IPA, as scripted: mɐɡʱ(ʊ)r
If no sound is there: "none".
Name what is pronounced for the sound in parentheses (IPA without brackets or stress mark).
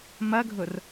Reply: ʊ